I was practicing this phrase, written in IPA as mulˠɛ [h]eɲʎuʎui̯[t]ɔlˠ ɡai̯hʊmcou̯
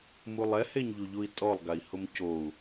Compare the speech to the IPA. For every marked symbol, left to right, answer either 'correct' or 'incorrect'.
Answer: correct, incorrect: tʼ

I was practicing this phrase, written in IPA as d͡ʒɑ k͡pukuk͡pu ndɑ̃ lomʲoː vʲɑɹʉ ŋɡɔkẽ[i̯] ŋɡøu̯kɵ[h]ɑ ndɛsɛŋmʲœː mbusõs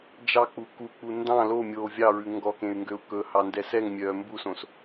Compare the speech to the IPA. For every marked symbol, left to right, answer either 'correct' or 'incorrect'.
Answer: incorrect: y̯, correct

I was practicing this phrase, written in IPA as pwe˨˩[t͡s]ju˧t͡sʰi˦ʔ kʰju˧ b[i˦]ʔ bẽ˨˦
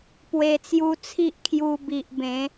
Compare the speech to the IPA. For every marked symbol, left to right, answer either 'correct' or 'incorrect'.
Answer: correct, incorrect: i˨

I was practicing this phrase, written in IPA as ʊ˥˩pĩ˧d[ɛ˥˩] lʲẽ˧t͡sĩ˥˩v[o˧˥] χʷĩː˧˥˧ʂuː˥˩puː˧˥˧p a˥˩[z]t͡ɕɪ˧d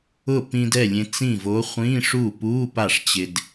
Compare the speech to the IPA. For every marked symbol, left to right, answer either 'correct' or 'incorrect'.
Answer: correct, correct, incorrect: ʂ

